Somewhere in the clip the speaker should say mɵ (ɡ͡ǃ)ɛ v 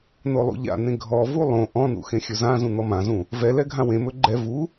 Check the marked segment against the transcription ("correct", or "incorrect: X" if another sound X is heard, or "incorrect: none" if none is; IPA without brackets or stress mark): correct